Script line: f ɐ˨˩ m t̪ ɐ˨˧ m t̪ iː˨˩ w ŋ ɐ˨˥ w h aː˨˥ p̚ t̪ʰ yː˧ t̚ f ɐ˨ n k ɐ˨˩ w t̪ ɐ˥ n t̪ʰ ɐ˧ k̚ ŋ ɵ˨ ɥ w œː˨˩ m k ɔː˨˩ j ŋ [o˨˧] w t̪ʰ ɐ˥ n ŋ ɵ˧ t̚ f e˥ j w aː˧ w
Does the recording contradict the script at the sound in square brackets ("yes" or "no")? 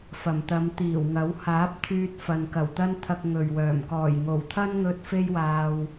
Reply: yes